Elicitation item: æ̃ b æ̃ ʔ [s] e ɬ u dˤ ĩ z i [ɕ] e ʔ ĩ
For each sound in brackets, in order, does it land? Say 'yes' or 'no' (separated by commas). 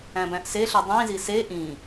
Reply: yes, no